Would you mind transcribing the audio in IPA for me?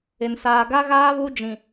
ɪ˨ n s aː˨ ɡ a˦ ɣ aː˦ β u˦ d͡ʒ ĩ˨

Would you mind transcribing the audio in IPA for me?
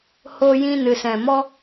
h o˧ j ĩ˧ n ɨ˨ s ɛ̃˨ m ɔ˧

